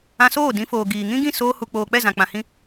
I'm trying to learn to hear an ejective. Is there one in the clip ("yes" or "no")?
no